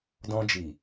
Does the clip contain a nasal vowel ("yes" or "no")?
yes